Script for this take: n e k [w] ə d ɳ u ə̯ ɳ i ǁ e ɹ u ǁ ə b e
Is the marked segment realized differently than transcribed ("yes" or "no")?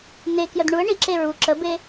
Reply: yes